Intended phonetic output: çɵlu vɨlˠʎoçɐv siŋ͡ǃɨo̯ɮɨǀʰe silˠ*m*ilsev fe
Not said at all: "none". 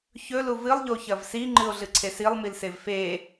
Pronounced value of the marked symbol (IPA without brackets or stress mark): m